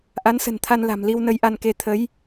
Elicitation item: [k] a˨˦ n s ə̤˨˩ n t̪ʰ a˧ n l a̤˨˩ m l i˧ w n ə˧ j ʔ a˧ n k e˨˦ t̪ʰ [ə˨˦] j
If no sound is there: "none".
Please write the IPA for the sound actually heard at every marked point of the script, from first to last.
ʔ, ə˨˦

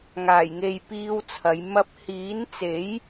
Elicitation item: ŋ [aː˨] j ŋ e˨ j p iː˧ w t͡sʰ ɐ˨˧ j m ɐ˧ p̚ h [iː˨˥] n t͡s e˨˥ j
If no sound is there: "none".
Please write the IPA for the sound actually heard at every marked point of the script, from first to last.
aː˨˩, iː˨˥

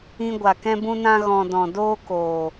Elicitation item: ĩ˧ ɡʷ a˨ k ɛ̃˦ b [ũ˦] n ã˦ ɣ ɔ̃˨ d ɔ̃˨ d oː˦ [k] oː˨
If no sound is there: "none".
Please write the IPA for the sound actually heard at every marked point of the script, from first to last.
ũ˦, k

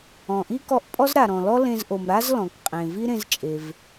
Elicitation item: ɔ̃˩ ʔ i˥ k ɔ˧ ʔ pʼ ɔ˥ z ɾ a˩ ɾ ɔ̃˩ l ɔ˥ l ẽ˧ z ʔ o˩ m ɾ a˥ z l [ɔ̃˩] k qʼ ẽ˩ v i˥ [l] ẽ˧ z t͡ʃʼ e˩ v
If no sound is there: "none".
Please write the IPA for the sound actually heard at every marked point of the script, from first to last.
ɔ̃˩, ɾ

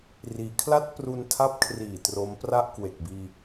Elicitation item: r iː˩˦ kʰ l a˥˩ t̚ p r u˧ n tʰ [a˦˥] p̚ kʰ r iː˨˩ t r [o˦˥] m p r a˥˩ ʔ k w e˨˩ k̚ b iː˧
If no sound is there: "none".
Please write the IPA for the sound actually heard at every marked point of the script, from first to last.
a˦˥, o˦˥

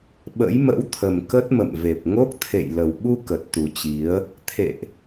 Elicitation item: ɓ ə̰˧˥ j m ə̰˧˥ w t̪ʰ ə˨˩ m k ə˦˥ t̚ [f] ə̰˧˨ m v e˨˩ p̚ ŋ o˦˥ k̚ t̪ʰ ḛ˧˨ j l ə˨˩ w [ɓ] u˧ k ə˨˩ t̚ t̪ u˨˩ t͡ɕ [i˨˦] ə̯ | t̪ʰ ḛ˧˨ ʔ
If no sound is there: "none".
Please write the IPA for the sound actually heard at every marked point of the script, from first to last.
m, ɓ, i˨˦

